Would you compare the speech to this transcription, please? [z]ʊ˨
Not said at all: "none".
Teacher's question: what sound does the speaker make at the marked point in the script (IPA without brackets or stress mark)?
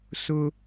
s